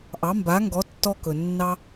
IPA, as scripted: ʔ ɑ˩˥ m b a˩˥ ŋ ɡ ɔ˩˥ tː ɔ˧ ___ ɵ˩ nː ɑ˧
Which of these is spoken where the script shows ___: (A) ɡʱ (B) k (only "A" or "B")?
B